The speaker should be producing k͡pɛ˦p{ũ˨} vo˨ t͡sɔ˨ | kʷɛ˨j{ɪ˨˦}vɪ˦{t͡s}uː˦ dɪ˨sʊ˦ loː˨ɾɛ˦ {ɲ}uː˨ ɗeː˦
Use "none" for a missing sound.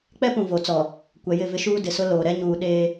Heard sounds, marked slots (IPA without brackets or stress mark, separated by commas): ũ˨, ɪ˦˨, ʃ, ɲ